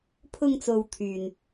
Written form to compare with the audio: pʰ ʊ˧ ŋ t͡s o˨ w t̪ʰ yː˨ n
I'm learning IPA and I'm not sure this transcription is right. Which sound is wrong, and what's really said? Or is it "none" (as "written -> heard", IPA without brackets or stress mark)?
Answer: none